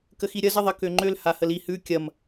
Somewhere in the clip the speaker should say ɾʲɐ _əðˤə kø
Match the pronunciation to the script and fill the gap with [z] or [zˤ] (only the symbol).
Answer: z